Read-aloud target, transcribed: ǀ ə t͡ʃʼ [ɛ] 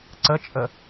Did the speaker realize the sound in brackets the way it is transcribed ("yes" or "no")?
no